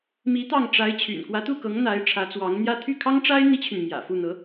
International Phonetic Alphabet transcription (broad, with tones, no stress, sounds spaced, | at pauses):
m i˧˥ t̪ ɑ˥˩ ŋ ʈ͡ʂ a˧˥ ɪ̯ t͡ɕʰ y̰˨˩ n k w ä˧˥ t̪ u˥˩ k ɤ˧˥ ŋ n̪ a˧˥ ɪ̯ ʈ͡ʂʰ ä˧˥ t͡s w ɑ˧˥ ŋ n̪ j ä˥ t̪ʰ y˥˩ kʰ ɑ˥ ŋ ʈ͡ʂ a˥ ɪ̯ n̪ i˥ t͡ɕʰ y˨ n m j ä̰˨˩ f u˥˩ n̪ ɤ˧˥